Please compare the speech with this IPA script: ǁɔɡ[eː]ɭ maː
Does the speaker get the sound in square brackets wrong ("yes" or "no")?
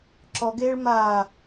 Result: no